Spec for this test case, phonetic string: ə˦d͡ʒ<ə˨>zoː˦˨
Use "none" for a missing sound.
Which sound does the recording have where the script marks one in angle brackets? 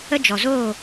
ɔ˨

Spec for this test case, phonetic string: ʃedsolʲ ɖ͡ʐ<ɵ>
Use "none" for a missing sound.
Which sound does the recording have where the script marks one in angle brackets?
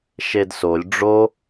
o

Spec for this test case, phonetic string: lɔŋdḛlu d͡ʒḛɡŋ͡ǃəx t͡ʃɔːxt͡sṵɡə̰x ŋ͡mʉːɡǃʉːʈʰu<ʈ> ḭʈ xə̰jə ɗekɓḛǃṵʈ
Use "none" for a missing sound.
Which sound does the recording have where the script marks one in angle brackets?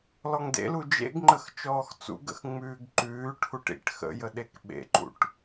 ʈ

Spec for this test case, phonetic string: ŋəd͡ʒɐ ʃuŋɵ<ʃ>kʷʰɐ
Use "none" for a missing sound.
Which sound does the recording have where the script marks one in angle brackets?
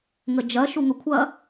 none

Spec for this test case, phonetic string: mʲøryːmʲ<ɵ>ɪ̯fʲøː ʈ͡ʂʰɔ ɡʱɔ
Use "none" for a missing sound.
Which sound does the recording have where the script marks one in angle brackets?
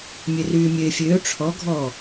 ø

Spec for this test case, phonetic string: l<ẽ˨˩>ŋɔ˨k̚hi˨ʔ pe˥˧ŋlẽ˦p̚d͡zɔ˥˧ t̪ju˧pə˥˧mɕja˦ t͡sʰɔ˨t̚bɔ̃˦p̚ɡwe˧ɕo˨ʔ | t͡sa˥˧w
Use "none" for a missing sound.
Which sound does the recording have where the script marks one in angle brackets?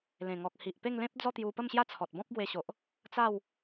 ẽ˨˩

